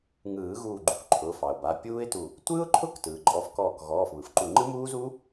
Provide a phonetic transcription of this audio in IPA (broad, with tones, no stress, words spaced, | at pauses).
ŋɯː˨˩˦ɣuː˧˩ ɡ͡ǃu˧kǃʰʊː˩˧˩ fɑ˩ʊ̯ba˩˧˩ pʲuː˦˥ɪ̯tu˧˩ | tʷɯː˦˥ʊ̯ǃʰʊ˦˥k tɯː˩ǃʼɔ˨˩˦fkɔː˧˩k ɣɔː˩˧˩fβɯ˩fǃu˧˩ ŋ͡ǃɯ˦˥muː˦˥zu˦˥